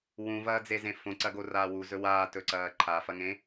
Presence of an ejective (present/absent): absent